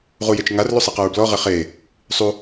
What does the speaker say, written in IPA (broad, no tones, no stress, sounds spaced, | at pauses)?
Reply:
ʁ u j e t͡ʃ ŋ a r l u sˤ ɛ q ɤ ɹ b l ɔ ʁ e χ eː | sˤ u